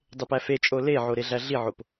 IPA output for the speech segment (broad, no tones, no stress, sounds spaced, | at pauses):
dˤ e p æ f e t͡ʃʼ o l e ʕ o ɾ e ɮ æ ɮ i ʕ o p